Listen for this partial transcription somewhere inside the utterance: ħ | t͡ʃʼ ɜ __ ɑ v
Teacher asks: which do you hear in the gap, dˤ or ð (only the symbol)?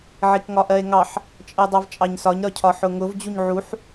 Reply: dˤ